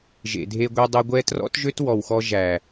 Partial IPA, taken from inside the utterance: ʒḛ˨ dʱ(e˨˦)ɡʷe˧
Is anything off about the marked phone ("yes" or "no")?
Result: yes